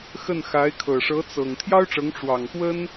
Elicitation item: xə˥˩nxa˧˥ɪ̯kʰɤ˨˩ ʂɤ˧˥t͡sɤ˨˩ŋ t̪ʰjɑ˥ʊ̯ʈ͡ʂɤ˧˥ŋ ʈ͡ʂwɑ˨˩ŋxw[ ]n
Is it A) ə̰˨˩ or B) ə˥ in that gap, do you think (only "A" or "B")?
B